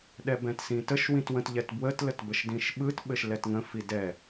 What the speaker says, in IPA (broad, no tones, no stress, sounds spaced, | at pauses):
ɗ ɛ b ɛ̃ t s ĩ t ə ʃ w ĩ t w ə̃ t ʎ ɛ t b w ə t l ə t b ə ʃ d ĩ ʃ ɓ ɯ t ɓ ɘ ʃ l ɛ t ŋ ə̃ f i d ɛ